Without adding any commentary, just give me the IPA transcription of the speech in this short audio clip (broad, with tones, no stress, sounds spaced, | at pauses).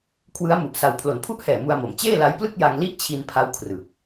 kʰ w ɯ˦˥ a̯ m u˨˩ ʔ s a˧ w pʰ l o˨˩ n pʰ u˥˩ ʔ h ɛː˨˩ m u˧ a̯ m o˩˦ m t͡ɕ eː˥˩ l a˦˥ j p l ɯ˥˩ k̚ j a˧ ŋ l i˥˩ ʔ t͡ɕʰ i˧ n pʰ a˦˥ w kʰ r ɯ˨˩ k̚